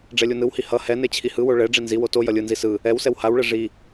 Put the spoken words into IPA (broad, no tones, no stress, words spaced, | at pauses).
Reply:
ɖ͡ʐɛlʲunɯwhi hʌ hɛne t͡ɕʰihɯwo ɭɛ ɖ͡ʐinziwo to jʌlʲɯnzi sɯ | ɛwsɛw hawɭɛ ʐi